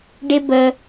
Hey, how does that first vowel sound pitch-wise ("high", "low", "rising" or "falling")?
high